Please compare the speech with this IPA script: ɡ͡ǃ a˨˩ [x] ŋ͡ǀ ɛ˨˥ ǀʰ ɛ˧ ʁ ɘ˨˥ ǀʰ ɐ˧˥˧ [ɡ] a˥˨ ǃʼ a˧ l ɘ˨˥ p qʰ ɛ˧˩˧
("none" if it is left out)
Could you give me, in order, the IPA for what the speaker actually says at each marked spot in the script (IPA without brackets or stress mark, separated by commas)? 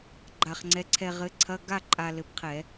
χ, ɡ